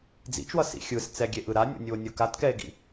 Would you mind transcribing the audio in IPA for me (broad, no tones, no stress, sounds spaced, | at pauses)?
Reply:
d͡z ḭ t͡ʃ w ʌ s ḭ xʲ ɯ s t͡s ɛ ɡʲ e ʔ ɯ ɾ a nʲ o̰ nʲ u o̯ nʲ u k a t k ɛ e̯ ɡ ḭ